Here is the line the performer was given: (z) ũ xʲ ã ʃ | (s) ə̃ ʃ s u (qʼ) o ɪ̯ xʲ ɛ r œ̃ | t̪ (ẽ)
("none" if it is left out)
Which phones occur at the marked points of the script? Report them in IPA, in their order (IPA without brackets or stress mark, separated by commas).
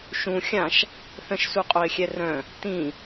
ʃ, θ, qʼ, ĩ